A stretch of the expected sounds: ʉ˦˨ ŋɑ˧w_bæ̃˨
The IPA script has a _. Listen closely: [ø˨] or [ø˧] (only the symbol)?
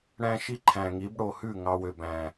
ø˨